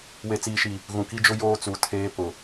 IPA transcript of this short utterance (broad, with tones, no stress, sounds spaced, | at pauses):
w e˨ t͡s iː˨ ʃ i˨ | ɣ ũ˨ k i˦ d͡ʒ ʊ˦ j oː˦ t͡s u˨˦ tʰ eː˦ p ʊ˨